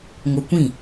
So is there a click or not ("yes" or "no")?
no